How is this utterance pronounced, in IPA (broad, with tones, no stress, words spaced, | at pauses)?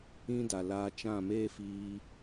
ĩ˦da˨laː˧ t͡ʃã˦˨meː˦ fiː˧